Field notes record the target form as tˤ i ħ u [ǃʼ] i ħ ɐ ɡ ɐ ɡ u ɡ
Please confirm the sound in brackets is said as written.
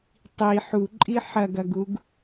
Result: yes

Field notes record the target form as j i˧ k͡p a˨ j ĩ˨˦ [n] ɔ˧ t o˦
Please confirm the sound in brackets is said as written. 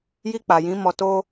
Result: no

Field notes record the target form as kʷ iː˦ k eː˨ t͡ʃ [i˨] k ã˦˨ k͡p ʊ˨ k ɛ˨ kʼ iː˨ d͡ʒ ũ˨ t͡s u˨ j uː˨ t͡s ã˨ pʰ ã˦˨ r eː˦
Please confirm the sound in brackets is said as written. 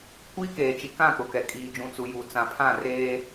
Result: yes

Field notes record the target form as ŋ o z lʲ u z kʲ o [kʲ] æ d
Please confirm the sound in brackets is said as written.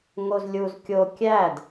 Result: yes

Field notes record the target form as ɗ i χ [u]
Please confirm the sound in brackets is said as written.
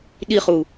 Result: yes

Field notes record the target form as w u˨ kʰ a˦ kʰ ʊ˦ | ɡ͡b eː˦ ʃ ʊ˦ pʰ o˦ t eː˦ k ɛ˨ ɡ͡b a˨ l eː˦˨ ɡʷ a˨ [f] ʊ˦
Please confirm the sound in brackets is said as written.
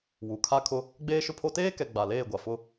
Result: yes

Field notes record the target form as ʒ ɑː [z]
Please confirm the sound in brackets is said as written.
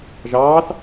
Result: no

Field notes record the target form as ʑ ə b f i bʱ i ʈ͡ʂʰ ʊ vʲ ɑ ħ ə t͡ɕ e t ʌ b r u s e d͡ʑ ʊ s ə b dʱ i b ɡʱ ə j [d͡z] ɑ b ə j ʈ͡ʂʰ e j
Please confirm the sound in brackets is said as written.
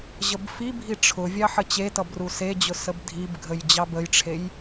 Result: no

